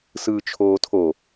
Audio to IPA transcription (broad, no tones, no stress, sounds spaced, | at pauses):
s ɯː t͡ʃʰ oː tʰ o